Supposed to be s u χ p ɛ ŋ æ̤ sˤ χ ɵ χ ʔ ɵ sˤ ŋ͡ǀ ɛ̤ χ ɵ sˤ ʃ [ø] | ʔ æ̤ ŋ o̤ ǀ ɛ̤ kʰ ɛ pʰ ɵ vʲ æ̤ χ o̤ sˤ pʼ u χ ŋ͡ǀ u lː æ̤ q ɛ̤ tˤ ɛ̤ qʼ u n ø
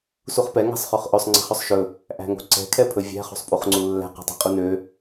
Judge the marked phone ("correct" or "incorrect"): incorrect